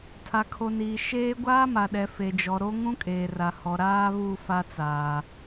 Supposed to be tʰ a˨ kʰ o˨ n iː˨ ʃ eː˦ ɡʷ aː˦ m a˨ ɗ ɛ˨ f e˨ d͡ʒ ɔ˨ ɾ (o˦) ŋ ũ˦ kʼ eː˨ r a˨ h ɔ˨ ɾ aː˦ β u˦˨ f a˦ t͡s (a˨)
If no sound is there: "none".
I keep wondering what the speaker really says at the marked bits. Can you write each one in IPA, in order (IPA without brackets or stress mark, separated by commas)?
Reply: o˦, aː˨